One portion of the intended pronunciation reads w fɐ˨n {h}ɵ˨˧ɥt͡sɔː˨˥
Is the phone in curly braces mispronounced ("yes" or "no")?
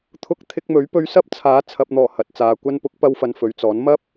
yes